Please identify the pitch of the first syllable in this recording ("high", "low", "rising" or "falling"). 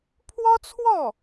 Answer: high